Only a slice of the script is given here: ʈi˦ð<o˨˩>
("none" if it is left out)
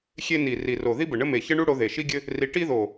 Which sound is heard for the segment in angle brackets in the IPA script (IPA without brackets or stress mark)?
o˨˩